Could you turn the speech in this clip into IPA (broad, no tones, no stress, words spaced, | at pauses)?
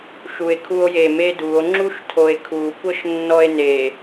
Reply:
ʃue̯kʰuo̯je meduo̯ ŋ͡ǁuʃtʰoe̯kʰu kʷɤʃnːɔe̯ne